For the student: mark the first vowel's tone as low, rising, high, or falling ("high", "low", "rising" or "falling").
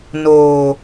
low